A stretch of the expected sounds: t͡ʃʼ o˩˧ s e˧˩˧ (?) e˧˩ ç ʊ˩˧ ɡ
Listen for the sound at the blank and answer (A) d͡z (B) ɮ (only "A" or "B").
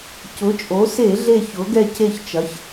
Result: B